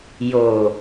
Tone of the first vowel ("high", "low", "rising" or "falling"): low